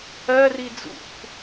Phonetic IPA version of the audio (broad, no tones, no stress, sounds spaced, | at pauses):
ɜ r i d͡z ṵ k